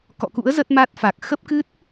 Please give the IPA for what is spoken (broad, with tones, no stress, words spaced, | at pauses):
kɔ̰˧˨kṵ˧˥ə̯ zə˦˥t̚ma˦˥t̚ fa˨˩k̚ xə˦˥p̚kɨ˦˥t̚